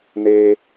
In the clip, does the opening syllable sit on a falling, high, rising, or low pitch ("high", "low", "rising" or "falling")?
high